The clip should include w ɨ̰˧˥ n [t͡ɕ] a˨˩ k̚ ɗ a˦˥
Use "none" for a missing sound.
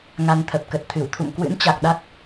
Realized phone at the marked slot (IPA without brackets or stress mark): t͡ɕ